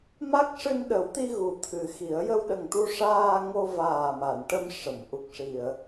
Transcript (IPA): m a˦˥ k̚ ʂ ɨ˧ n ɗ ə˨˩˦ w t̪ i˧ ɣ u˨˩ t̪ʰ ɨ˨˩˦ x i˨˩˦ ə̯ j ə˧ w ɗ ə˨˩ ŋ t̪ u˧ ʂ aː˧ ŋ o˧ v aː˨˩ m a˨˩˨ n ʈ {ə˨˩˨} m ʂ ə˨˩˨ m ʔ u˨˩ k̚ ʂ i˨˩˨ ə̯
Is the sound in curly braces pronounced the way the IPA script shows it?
no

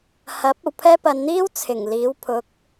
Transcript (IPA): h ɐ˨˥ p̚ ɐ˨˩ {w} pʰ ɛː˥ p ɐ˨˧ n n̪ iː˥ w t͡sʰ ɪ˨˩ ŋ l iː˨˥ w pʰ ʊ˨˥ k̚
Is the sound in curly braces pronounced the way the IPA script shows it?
yes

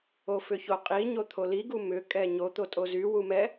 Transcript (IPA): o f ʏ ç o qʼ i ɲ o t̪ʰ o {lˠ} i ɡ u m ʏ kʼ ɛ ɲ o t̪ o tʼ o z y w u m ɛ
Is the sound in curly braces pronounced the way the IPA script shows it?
no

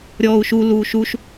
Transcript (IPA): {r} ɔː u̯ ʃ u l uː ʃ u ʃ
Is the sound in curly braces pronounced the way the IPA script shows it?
no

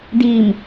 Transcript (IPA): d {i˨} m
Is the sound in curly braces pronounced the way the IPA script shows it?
no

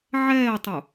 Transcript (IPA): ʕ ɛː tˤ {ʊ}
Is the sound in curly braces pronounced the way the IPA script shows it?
no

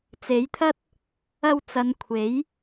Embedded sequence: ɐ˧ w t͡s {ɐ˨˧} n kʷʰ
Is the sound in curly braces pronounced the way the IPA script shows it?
yes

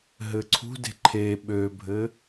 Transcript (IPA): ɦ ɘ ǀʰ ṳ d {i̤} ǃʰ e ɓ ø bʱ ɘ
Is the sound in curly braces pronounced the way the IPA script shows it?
no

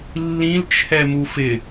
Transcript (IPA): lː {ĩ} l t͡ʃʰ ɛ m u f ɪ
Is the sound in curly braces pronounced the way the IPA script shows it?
yes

